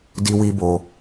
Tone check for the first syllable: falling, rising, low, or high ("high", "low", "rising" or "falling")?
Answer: high